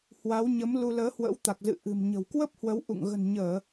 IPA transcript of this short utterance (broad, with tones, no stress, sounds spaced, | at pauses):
h w a˨˦ w ɲ ə˨˦ m l u˧ l əː˨˦ h w ə̰˧˥ w t̪ a˨˩ k̚ z ɨ̰˧˨ ʔ ɨ̤˨˩ m ɲ ə̤˨˩ w k w ə˦˥ p̚ h w ə˨˦ w ʔ ṵ˧˨ ŋ ɣ ə̤˨˩ n ɲ əː˧˩˨